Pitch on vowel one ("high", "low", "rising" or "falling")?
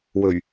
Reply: low